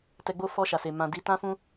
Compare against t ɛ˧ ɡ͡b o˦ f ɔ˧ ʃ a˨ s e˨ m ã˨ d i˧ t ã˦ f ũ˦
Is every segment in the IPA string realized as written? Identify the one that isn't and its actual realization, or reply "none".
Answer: none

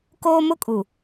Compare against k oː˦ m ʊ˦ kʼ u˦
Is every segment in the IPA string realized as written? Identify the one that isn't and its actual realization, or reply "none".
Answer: u˦ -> u˨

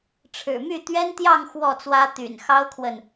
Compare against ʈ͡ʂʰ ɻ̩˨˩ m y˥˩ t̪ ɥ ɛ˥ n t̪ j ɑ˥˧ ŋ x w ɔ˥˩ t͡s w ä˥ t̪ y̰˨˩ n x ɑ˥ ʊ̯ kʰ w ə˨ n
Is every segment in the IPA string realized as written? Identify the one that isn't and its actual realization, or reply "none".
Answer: none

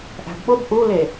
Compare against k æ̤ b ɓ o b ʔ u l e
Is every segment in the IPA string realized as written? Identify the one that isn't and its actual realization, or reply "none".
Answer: k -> ʔ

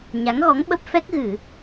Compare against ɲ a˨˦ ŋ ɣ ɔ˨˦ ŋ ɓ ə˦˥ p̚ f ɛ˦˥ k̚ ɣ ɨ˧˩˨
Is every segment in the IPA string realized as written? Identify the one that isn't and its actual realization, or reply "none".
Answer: none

